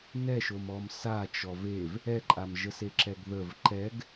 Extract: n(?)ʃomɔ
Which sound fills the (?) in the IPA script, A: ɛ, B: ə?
A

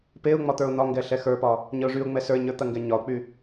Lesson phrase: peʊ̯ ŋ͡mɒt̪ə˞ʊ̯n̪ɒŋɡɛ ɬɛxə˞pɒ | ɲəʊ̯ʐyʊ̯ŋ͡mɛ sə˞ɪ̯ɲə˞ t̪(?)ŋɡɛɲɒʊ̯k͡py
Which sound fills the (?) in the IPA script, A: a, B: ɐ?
B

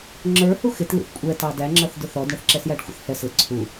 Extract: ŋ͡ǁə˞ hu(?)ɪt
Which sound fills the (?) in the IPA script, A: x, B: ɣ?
A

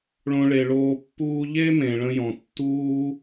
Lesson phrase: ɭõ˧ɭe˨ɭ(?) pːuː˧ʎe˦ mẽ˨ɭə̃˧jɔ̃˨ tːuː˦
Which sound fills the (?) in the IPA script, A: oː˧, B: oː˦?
A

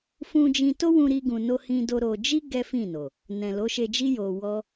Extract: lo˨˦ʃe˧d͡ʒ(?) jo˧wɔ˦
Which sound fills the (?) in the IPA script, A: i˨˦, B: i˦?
B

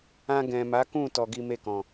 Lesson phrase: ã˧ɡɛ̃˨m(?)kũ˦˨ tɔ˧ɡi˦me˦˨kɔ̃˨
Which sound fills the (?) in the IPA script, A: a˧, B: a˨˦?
B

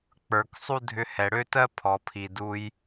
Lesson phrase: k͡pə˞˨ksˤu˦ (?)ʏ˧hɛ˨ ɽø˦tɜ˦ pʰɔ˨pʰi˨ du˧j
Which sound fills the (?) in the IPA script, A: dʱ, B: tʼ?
A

